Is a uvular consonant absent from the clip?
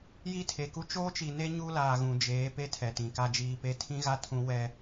yes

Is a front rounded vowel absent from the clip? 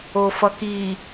yes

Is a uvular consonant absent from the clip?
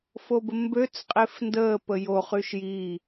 no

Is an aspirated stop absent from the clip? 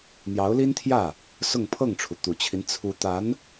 no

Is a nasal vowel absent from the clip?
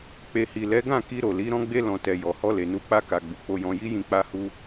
no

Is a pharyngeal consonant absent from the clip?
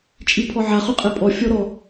no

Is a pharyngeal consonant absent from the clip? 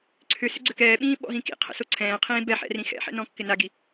no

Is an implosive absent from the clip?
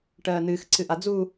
yes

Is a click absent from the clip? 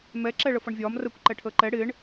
no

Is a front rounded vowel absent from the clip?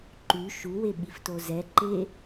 no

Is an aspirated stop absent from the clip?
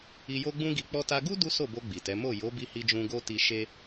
yes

